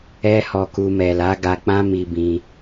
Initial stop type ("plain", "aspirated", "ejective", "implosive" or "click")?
plain